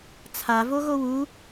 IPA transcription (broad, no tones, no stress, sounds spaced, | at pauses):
t͡sʰ a v o ɣ o w u